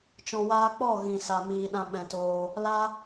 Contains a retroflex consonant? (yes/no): no